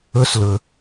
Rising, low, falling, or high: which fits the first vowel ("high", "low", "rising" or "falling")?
rising